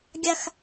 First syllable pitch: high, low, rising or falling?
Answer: low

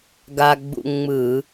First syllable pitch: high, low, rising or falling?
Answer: high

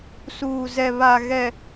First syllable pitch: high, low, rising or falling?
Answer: low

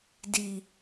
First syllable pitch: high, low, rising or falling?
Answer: low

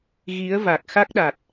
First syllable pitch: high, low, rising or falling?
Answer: rising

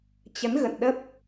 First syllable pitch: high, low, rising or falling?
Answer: rising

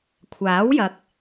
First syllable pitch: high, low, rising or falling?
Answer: rising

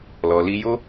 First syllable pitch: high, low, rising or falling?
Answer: low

